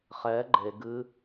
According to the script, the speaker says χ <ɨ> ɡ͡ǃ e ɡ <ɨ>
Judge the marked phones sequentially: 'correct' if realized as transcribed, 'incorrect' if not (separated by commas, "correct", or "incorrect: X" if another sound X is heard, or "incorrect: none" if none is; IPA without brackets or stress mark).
incorrect: ɛ, correct